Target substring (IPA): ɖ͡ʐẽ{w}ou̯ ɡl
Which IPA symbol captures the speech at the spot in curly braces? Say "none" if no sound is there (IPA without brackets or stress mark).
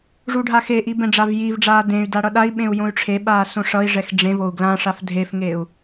v